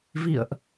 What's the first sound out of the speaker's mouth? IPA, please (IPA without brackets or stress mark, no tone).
v